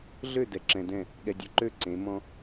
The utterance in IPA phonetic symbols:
ɮ ø˥˨ d ɛ˧ ǁ ɛ̃˧ d ɛ̃˥˨ | ɠ ɛ˧ dʲ ø˧ ǃ ø˥˨ ǀ ẽ˨˥ m ɔ̃˧

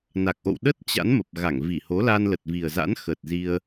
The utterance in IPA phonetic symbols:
n a˨˩ k̚ ʔ o̰˧˨ w ɗ ə˦˥ t̚ t͡ɕ a̰˧˥ n m ə˨˩ p̚ ɣ a˧˩ ŋ v i˧˩ h o˨˦ l a˧ n l ə˨˩ t̚ v i˨˩ ə̯ z a̰˧˥ n x ə˨˩ t̚ z i˧ ə̯

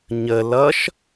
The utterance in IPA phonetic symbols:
ɲ ə l ʌ ʃ

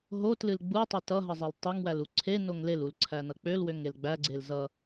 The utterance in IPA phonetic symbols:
ɦ o t l ɨ l ɡ͡b u tˤ e t ʌ ɦ ʌ zˤ e l tˤ e ŋ w æ l u ǀʰ e n o ŋ l e l u l ǀʰ æ n ʌ k͡p ø l w ø ŋ e l ɡ͡b æ ɡ͡ǀ e l z ʌ

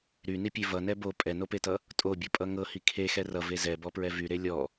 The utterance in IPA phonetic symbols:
ɾ y n i pʲ e v ʌ n ɛ b o pʼ ɛ n o p e t ʌ | tʼ o bʲ o pʼ ʌ ŋ ɤ h i kʰ e x ɛ r ʌ v e z ɛ b ɔ p ɹ ɛ v y ɾ e lʲ ɔ

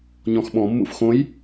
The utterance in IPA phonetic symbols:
ɲ ɔ̃ x ɓ ɔ̃ mː ṵ f x õ j

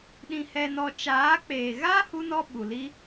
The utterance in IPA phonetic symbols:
ɗ ĩ˧ h ɛ˧ n ɔ˧ t͡ʃ aː˨˦ k͡p eː˨ ɣ a˦ h u˦ n ɔ˦ ɓ u˨ l i˦

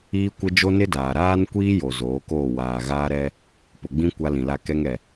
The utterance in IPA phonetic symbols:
iː˦ kʷ ɪ˦ d͡ʒ o˦ n ɪ˦ d aː˨ ɾ aː˦ n kʷ iː˦ j o˨ z oː˨˦ k oː˦˨ w aː˨ ɣ aː˦ ɾ ɛ˦ | p ʊ˨ ɡ͡b ĩ˦ kʷ a˦ l ĩ˨ l a˦ k ɛ˦ ŋ ɛ˨

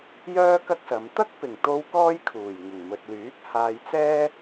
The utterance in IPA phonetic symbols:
j œː˥ k ɐ˥ k̚ s ɐ˨˧ m t̪ ɐ˥ k̚ p ɪ˨˩ ŋ t̪ o˧ w k ɔː˥ j kʰ uː˨˩ j ŋ ɪ˨˩ ŋ m ɵ˨ t̚ l yː˨˥ k̚ h aː˧ j t͡s ɛː˥

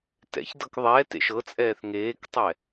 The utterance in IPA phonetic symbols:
t ɛ̰ ç d ɤ k ðˤ ɛː t ḛ ʃ ɤ t͡sʼ ɛː θ ŋ eː k tˤ ɛ

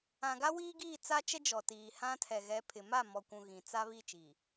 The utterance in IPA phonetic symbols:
ã˨ ɡ a˦ w iː˦ ɡ iː˦˨ t͡s a˦ t͡ʃ ɛ˦ d͡ʒ ɔ˨ t iː˨ h ã˦ tʰ ɛ˨ ɣ ɛ˨˦ pʰ ɪ˨ m a˦˨ m ɔ˨ kʷ ũ˨ ɣ ĩ˨ t͡s a˦ β i˦˨ t͡ʃ i˨

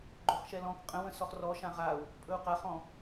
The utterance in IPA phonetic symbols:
ɡ͡ǃ ɵ χ ʃ ɛ l ɔ̃ k qʼ ə̃ w ə̃ s ɔ χ r ɔ ʃ ã ʁ a u̯ | pʼ ɵ u̯ q a χ ɔ̃

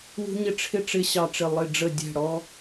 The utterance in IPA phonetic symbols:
w ṳ˥ ɲ ɪ˥ ʈ͡ʂʰ ɪ˥ ʈ͡ʂ ɪ˥ ɕ ɑ˦˨ ʈ͡ʂ ɪ˦˨ lˠ ɪ˦˨ ɖ͡ʐ ə˦˨ dʲ ɛ̤˦˨ ɽ ɔ˥

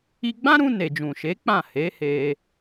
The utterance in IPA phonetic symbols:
i˧ ɡ͡b ã˦ ɾ ũ˧ n e˨ d͡ʒ ũ˨ ʃ e˨˦ k͡p ã˦˨ h e˨˦ h e˧

